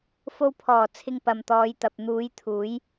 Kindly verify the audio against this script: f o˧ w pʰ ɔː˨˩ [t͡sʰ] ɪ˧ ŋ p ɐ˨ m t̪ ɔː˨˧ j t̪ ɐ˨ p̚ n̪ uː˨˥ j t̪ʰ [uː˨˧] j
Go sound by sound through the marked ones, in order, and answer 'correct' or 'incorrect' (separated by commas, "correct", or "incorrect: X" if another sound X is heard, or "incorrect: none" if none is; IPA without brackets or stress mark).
correct, incorrect: uː˨˥